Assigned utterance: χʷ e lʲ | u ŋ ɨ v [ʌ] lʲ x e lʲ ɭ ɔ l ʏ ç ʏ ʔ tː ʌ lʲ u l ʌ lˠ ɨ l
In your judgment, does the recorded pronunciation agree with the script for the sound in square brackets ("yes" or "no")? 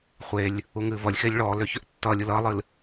yes